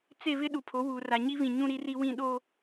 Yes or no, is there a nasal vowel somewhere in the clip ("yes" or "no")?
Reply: yes